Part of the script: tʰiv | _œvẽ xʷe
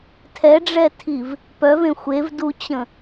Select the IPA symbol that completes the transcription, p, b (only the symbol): p